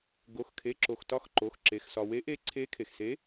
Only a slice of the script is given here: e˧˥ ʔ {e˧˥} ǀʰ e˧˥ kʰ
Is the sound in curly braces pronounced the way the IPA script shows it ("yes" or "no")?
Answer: yes